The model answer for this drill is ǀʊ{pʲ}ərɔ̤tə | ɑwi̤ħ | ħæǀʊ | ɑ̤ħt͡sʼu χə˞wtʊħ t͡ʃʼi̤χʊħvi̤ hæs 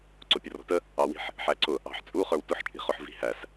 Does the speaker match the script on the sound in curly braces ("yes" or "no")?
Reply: yes